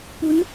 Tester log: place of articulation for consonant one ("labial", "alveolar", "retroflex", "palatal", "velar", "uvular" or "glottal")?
labial